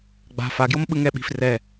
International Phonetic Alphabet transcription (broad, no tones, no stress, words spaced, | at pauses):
ɡ͡ba̤ faɡjomɓɯ ŋɛɓi̤f rɛ